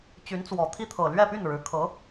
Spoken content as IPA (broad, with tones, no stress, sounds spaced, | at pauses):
t͡ɕ y˧˥ n t͡s w ɔ˨˩ t̪ʰ i˥ t̪ʰ ɤ˨˩ l ɥ ɛ˥˧ p y˥˩ n ɻ ɻ̩˨˩ kʰ ɤ˧˥